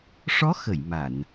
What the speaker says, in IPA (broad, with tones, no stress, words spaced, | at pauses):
ʂɔ˧˥xə˨˩˨j ma˨˩˨n